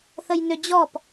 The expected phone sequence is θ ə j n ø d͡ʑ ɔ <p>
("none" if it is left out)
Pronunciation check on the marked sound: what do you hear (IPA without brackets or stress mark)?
p